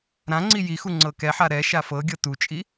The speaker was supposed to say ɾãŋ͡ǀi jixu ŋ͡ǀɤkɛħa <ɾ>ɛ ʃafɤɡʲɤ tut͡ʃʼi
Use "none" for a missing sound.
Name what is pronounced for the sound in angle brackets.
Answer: ɾ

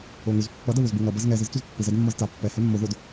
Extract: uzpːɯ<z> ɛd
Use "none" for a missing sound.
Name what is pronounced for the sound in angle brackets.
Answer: z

